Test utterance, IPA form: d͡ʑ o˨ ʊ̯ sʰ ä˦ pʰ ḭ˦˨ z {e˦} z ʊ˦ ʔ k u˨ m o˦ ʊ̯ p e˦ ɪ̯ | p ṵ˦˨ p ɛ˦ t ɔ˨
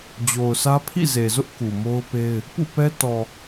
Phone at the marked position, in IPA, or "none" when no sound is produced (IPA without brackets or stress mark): e˨